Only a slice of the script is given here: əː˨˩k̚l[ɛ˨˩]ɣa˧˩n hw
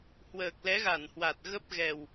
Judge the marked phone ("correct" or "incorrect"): incorrect